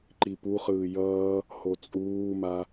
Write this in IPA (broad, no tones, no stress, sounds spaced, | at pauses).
ǃ i p u χ ɯː j ʌː | h o t͡sʼ uː m a